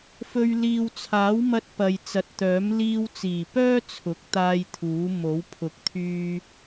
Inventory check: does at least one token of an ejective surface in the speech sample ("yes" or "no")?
no